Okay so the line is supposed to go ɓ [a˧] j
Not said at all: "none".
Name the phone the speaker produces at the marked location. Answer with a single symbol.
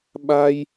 a˧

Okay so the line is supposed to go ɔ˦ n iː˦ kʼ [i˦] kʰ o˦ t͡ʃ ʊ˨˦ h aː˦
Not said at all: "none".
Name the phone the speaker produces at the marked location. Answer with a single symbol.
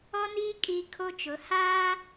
i˦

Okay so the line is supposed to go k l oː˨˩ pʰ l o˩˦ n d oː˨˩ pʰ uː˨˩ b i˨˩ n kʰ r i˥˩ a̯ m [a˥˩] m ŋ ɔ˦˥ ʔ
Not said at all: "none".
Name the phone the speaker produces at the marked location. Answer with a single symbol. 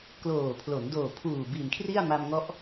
a˧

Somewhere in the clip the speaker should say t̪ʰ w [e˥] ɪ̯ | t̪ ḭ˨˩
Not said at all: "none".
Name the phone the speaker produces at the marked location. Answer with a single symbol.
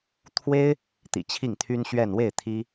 e˥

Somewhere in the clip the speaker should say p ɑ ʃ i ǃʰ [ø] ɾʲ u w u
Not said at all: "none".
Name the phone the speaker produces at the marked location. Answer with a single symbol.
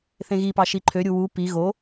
ø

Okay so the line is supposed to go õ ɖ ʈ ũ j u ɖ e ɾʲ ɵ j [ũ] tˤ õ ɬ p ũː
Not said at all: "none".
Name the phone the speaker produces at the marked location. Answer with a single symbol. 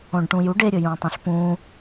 ũː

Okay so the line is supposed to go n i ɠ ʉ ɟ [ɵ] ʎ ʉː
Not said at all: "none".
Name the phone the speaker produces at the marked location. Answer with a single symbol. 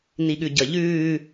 ə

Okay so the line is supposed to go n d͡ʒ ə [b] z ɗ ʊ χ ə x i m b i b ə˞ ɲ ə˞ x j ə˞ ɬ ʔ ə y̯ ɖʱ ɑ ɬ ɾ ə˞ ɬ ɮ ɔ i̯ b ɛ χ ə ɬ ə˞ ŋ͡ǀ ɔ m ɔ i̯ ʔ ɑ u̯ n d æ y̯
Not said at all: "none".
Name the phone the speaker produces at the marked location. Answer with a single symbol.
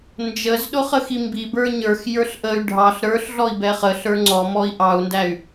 none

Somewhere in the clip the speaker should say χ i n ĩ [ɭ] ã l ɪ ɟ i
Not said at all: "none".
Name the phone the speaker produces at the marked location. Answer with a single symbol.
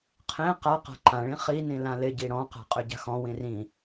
l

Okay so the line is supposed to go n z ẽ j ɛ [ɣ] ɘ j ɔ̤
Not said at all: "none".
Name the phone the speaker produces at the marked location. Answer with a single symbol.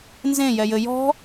j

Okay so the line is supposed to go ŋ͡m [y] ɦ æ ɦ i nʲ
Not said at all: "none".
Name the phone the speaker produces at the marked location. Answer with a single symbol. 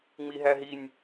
i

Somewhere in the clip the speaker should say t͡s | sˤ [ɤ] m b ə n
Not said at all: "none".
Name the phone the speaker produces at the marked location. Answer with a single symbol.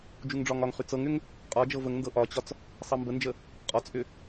ɤ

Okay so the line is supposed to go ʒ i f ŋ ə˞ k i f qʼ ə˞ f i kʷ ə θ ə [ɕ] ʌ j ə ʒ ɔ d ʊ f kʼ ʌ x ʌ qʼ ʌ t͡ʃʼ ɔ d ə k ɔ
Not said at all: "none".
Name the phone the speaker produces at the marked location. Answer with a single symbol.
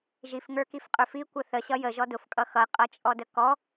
ɕ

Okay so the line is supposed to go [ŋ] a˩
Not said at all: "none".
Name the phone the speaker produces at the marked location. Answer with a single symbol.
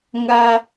ŋ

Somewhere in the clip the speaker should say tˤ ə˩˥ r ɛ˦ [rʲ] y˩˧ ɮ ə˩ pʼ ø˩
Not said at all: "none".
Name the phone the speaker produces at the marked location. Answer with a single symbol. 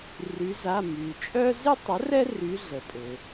r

